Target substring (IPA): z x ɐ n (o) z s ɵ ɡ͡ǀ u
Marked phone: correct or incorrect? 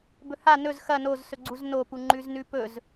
correct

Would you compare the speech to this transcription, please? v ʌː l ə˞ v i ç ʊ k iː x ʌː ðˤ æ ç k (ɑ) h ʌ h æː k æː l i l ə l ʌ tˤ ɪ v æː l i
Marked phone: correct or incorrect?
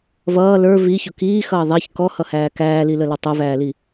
incorrect: ɔ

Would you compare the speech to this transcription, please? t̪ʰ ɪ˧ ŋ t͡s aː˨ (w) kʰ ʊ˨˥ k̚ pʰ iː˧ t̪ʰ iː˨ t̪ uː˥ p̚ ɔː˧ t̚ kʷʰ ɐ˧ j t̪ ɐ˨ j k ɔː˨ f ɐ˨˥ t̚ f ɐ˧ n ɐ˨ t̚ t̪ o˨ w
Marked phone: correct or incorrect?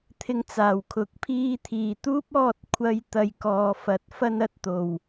correct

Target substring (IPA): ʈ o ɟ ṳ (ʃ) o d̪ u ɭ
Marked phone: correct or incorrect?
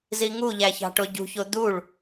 incorrect: ç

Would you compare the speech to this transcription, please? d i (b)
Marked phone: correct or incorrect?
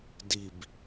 correct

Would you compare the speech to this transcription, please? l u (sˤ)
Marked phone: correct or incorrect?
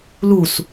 incorrect: s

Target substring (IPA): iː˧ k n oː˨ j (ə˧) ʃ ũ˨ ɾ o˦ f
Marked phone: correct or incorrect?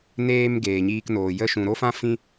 correct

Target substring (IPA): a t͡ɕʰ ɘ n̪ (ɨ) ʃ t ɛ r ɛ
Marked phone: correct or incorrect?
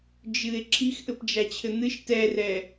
correct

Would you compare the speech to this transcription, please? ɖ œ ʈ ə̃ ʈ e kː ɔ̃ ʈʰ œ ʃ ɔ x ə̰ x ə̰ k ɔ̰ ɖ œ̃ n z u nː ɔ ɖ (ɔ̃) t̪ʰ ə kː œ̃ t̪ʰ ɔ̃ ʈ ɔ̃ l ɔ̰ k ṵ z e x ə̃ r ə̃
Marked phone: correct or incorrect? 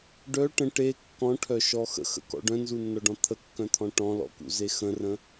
correct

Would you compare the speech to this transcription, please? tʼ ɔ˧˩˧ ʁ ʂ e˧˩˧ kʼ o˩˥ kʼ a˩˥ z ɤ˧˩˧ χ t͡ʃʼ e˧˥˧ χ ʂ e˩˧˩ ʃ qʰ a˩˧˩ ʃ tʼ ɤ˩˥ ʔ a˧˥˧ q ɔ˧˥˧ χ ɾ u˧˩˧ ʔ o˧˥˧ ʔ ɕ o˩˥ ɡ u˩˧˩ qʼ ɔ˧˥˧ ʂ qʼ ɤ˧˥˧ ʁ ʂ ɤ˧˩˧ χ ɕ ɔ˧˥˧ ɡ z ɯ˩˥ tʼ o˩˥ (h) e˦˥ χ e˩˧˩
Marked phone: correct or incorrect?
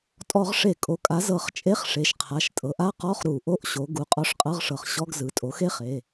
incorrect: x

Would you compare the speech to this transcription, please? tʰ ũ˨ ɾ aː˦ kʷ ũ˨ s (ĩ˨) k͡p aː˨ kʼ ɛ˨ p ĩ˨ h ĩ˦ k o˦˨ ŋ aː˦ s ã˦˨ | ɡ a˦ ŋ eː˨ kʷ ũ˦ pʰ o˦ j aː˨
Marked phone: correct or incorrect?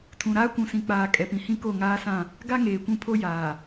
correct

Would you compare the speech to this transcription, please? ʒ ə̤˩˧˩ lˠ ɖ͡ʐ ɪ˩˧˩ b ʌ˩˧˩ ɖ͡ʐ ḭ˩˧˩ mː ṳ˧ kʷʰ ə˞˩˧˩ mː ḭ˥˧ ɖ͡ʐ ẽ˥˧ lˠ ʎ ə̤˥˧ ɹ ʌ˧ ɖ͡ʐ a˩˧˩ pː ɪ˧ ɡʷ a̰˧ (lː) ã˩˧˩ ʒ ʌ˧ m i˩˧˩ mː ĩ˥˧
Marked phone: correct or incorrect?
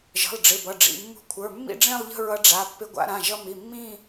incorrect: ɾ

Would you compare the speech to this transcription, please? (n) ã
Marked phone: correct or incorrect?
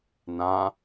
correct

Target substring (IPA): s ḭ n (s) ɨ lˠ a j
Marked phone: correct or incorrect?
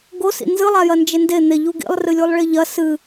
incorrect: z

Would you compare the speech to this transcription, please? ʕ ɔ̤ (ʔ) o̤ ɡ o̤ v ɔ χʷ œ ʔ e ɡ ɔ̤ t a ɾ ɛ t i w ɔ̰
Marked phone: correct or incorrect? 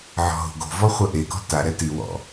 incorrect: ɦ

